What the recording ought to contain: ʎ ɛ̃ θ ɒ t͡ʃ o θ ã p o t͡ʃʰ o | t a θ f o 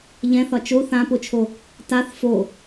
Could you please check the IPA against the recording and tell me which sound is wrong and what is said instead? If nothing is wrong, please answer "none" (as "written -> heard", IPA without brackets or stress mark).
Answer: none